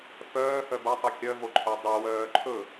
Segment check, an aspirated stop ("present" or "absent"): present